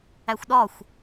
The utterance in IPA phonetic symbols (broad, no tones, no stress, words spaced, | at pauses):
æxʷɗɒxʷ